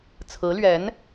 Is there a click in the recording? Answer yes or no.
no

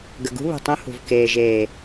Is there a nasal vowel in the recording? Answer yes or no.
yes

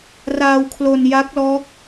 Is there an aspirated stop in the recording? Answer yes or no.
yes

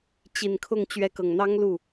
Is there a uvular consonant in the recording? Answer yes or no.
no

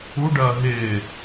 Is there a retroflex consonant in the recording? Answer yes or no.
yes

